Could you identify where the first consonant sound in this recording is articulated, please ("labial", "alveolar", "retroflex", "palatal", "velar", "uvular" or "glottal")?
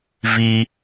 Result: labial